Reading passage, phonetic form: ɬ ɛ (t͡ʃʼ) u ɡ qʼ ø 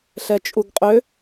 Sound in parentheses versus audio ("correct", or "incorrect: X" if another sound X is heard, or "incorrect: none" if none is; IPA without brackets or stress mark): correct